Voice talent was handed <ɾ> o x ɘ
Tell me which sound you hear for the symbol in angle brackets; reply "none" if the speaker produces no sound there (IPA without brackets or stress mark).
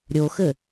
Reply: ɾʲ